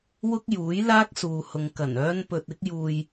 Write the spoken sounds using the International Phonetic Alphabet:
w ʊ˥ k̚ j uː˨˥ j l aː˥ k̚ s uː˨ h ʊ˨ ŋ k ɐ˨˩ n œː˥ n p ɵ˧ t̚ ɪ˥ k̚ j uː˧ j

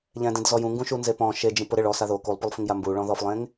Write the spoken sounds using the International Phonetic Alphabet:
ʎ ɛ̃ d ẽ d z ɔ j ũ ŋ ɡ ũ ʃ u n z e p ɔ̃ ʃ e d͡ʒ ĩ p ʊ ɾ ɪ ɭ ɔ s a ð o k u lˠ p ʊ lˠ f ĩ ŋ j a m b u ɭ ɔ̃ ð ɔ f lˠ ẽ ŋ

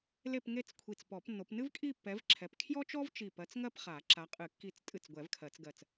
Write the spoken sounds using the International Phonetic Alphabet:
l e˥˧ p ŋ e˥˧ t͡s kʷʰ i˧˩ t͡s p ɔ˨˩˦ p nː o˨˦ p n ɨ˥ v kʼ i˥˧ pː ɛ˨˦ v ǁʰ ɛ˨˦ p kʰ j ɔ˥ t͡ʃ ɔ˥ v t͡ʃ i˧˩ p ɜ˨˦ t͡s ŋ ɜ˥˧ p χ a˨˩˦ ǁ a˨˦ qʼ ɨ˨˩˦ kː i˧˩ t͡s tʼ ɨ˧˩ t͡s ɡʷ ɛ˨˩˦ v kʰ ɜ˨˩˦ t͡s ɡ ɜ˧˩ t͡s

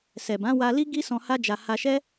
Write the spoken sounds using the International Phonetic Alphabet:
s ɛ˨ b ã˨˦ w a˧ l i˦ ɡ i˦ s ɔ̃˧ h a˦ d͡ʒ a˧ h a˧ ʃ ɛ˦

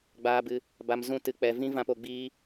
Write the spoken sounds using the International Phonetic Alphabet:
ɡ͡b aː˧ b ɨ˧ | b a˧ m z ũ˦ t ɨ˧ k͡p ɛ˧ v ĩ˦ v ã˧ p o˧ ɡ͡b iː˦

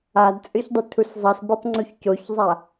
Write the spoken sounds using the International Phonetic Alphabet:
a d t͡sʼ ɯ ç dˤ ɯ tʰ u s zˤ ʌ s b i tˤ ŋ͡ǀ u ç c o ç zˤ a

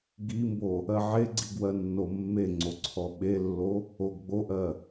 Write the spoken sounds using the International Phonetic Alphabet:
ɡ i m b o | ɜ ʕ e ɡ͡ǀ i ɡ w ɜ nː o mː e ŋ͡ǀ o ǀʰ ɔ ɓ e lː o | o ɡ ɡ͡b o ʔ ɜ

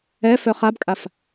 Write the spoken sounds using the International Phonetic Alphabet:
ɛ f œ χ a b kʼ a f

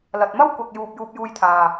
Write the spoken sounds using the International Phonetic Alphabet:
l ɐ˨ t̚ m ɐ˥ w kʷ ɐ˨ k̚ j uː˨ p̚ j uː˧ p̚ j uː˧ j t̪ʰ aː˨

